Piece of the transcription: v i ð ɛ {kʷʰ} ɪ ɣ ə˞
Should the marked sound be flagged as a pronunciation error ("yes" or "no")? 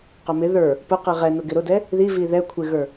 no